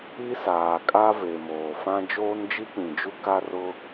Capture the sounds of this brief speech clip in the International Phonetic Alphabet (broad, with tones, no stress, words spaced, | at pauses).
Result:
i˦saː˨kʼa˦ ve˨moː˨fã˦ d͡ʒoː˦nd͡ʒi˦k͡pĩ˨d͡ʒu˦ ka˦rʊ˦